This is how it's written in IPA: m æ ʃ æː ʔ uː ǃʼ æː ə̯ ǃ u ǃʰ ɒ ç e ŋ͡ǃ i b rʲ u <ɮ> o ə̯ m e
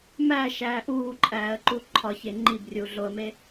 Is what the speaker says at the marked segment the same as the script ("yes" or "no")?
yes